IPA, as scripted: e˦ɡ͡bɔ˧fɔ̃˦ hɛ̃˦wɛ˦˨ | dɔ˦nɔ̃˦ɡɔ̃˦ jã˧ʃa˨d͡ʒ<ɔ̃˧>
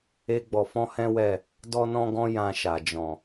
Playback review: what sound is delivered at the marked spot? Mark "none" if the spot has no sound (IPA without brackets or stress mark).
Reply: ɔ̃˨